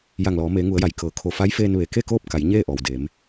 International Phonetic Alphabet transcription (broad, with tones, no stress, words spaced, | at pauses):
ja˧˩ŋlɔː˩˧ meː˩˧ŋu˩˧ə̯ja˩j kɤː˩˧kʰo˧˩ fa˧˥j feː˧nʋe˩˧ ke˥˨koː˥˨p̚ka˩˧j ɲeː˥˨ʔɔː˩wdeː˩˧m